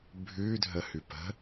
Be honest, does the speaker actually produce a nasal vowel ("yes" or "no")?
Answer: no